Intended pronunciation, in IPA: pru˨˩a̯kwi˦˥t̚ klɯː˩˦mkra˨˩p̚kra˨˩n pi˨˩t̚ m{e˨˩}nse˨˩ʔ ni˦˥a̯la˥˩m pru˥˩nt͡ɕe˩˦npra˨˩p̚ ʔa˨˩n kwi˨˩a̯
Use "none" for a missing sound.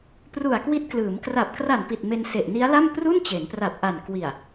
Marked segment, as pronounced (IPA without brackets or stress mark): e˧